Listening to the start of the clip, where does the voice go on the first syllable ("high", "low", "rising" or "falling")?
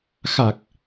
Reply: low